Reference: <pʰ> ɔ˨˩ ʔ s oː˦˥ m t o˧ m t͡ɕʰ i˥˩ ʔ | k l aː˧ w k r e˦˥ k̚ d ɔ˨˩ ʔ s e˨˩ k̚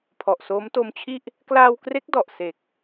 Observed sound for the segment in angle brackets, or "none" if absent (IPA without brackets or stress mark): pʰ